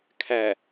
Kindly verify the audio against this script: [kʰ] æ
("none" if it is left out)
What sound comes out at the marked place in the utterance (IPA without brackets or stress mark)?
kʰ